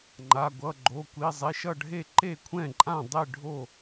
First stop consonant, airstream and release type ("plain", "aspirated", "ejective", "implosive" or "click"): click